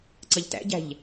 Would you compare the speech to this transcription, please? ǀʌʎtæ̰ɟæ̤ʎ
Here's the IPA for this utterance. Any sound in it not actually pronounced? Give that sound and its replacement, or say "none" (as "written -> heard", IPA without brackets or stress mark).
none